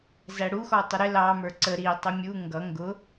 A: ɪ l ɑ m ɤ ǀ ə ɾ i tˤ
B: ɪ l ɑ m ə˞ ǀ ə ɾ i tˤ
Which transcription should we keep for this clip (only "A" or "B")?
B